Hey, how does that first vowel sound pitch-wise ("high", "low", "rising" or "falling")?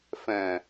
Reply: low